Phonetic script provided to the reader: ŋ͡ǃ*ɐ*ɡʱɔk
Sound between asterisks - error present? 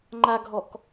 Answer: yes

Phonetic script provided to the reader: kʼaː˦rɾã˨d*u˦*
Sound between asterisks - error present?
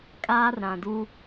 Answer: no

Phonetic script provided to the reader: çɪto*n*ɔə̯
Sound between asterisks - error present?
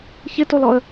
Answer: yes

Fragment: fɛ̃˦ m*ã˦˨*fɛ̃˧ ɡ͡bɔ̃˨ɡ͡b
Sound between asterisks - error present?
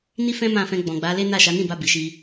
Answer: no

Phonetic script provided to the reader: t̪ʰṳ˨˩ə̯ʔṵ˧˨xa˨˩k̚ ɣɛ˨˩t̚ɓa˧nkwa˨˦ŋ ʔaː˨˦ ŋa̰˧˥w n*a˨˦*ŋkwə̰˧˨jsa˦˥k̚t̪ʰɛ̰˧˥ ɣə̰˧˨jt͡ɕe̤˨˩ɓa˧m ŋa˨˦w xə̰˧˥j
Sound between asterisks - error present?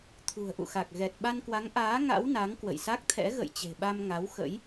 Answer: no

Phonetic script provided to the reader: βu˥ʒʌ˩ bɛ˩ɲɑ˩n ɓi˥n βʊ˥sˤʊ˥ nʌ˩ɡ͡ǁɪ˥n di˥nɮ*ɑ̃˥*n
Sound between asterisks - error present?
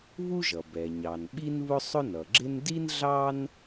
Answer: yes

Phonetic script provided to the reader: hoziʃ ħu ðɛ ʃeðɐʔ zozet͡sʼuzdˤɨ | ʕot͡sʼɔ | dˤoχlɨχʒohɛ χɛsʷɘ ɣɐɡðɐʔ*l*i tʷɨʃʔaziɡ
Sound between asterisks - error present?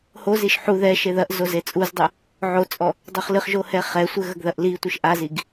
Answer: no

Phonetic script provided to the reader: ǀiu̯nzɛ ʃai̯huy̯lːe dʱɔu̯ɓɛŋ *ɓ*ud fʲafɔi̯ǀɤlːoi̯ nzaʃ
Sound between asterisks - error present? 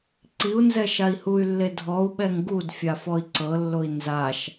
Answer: yes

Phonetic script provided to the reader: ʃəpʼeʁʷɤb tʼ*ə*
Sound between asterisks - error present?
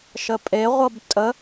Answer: no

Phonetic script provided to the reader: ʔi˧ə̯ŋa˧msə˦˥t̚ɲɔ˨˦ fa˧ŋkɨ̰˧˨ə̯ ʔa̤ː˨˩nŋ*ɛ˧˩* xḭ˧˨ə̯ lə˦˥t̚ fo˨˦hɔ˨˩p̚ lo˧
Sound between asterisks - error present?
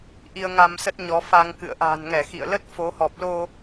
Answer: no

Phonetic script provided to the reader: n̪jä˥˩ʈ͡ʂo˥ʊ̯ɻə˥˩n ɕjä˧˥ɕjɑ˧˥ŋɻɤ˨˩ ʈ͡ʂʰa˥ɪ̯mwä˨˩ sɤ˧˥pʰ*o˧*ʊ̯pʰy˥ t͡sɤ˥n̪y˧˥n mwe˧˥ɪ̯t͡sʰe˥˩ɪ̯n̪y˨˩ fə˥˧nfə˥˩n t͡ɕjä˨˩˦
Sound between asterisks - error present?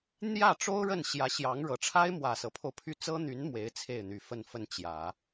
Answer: no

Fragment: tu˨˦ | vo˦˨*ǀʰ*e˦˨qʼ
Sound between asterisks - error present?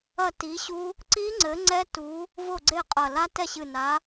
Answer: yes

